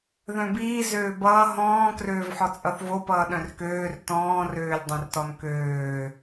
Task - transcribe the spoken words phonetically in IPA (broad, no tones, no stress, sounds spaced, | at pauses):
ð œ̃ b iː z øː b ʌː ɦ ɔ̃ː k r øː v ħ ɔ t͡sʼ ʌ θ v o p ʌː ɗ œ̃ r k øː r t ɔ̃ː r øː lʲ dˤ œ̃ r t ɔ n k øː